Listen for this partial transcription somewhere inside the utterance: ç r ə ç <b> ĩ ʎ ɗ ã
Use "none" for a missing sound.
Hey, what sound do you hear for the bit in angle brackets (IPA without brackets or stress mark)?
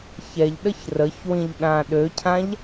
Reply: w